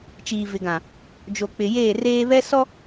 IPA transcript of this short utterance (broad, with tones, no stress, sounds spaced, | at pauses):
t͡ʃ iː˨ v ɪ˨ ɡ ã˨ | d͡ʒ o˨ k͡p ɪ˨ j eː˦˨ r eː˦ β ɛ˦ s ɔ˦